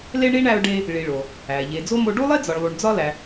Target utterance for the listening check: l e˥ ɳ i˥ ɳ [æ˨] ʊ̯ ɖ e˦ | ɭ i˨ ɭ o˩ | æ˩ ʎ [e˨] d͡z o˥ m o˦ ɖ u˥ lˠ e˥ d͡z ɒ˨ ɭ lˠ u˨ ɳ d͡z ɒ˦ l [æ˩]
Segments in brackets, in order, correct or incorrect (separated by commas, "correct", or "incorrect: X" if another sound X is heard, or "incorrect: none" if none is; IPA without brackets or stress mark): incorrect: æ˦, correct, incorrect: æ˨